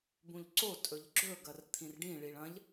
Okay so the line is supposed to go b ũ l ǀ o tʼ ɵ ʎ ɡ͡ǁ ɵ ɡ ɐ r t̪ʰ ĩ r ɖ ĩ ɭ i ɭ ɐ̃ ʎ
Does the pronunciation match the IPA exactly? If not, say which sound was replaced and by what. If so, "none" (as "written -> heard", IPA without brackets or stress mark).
l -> ʎ